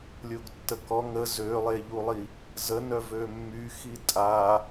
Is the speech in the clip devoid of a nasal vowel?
yes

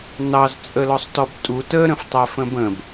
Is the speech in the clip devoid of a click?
yes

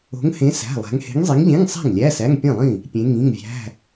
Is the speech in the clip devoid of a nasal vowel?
no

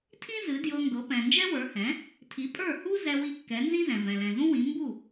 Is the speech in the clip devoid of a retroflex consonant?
yes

